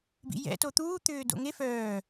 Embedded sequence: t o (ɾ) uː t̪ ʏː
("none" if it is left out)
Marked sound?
t̪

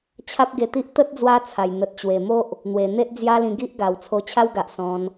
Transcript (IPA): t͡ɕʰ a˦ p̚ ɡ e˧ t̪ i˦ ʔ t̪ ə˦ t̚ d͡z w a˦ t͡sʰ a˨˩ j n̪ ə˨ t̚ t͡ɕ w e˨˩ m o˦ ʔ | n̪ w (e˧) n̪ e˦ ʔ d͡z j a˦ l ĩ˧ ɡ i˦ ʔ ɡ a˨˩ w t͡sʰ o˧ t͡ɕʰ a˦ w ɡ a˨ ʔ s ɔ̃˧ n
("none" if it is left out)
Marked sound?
e˨˩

